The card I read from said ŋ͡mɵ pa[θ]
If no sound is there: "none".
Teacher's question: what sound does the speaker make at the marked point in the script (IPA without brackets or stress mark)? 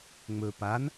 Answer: n